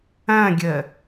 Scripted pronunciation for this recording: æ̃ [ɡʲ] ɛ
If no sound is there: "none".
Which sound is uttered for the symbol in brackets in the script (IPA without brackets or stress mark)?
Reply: ɡʲ